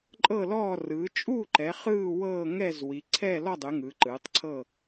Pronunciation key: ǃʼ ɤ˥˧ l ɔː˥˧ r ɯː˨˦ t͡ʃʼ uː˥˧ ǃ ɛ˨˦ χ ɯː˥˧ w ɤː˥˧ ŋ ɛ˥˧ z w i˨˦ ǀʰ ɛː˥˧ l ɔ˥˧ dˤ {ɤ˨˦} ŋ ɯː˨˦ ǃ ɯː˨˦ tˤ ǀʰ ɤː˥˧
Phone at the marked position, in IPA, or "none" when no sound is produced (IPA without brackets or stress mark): ɯ˨˦